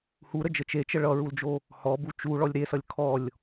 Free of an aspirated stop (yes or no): no